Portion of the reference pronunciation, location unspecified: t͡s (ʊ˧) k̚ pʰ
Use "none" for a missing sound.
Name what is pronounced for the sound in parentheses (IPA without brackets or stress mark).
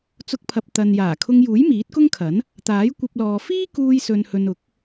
ʊ˧